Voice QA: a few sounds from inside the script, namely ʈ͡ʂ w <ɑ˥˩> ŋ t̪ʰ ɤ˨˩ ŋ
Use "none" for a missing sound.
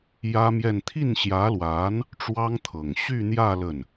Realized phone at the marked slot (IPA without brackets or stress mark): ɑ˥